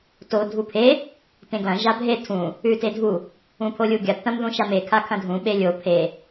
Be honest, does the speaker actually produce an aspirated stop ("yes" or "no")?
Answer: yes